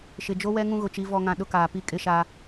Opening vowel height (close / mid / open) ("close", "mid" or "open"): close